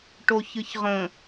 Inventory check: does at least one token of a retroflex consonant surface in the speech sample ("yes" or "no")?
yes